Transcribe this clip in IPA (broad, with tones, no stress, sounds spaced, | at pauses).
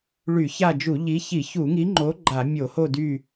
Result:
ɭ y˧˩˧ ç a˦˨ d͡ʒ u˧˩˧ ʎ i˨˥ ç i˧˩˧ ç u˧˩˧ ŋ i˨˥ ŋ͡ǃ o˨˥ ɡ͡ǃ a˧˩˧ mʲ o˧˩˧ h o˦˨ d y˦˨